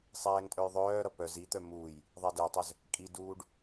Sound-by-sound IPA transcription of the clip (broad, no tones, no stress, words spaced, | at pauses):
sˤɛːŋtʼœjðˤœːɾʌ pœz it̪œ muːj | ðˤɛdɛtˤœz | kʼiduːɖ